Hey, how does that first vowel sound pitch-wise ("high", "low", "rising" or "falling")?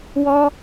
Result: high